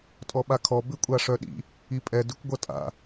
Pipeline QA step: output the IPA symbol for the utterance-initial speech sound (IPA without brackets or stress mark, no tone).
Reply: tʼ